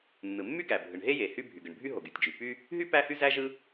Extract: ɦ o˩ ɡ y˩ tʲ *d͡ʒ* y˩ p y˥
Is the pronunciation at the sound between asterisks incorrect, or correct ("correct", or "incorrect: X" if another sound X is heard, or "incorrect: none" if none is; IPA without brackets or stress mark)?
correct